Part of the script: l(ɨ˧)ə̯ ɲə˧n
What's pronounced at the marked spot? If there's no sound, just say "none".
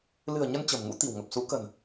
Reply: ɨ̤˨˩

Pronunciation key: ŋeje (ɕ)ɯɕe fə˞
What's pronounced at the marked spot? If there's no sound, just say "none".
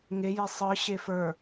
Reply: sˤ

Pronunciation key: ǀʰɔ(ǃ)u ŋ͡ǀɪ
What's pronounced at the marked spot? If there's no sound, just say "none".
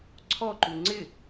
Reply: ǃ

